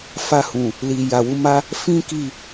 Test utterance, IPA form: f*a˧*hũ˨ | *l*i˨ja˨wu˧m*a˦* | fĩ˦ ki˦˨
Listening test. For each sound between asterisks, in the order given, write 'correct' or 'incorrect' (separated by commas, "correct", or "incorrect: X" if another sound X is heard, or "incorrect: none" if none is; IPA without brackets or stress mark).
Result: correct, correct, correct